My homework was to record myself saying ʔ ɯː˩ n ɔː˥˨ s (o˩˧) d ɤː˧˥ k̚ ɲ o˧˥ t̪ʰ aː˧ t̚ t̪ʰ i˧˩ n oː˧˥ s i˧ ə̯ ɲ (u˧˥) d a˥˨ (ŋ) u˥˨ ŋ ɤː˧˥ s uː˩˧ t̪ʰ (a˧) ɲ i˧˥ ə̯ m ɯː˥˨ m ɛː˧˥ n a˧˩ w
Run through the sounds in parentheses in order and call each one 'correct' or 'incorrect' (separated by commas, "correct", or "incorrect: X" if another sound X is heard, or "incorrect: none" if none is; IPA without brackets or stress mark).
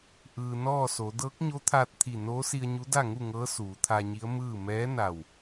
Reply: correct, correct, correct, correct